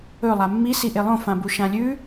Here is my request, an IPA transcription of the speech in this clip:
ɵ lˠ a mː i s i ʔ e lˠ õ f ã b u ʃ ã lʲ ʉ

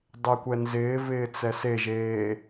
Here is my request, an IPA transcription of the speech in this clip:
dˤ e kʷ ɛ n z ɪː v ɪː t͡s ɛ s e ʒ eː

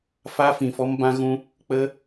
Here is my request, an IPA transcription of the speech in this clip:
f a˦ f ĩ˨ f ɔ˦ m b ã˦ ɣ ũ˦ | k͡p ə˦

